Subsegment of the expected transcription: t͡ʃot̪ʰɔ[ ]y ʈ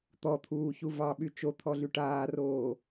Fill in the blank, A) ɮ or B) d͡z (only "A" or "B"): A